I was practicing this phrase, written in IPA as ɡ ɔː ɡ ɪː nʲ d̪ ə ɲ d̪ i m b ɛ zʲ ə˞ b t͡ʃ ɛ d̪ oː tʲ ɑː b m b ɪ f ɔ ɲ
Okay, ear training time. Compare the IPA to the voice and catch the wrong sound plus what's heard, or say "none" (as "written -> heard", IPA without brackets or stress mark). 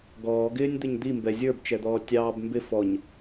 oː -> ɔː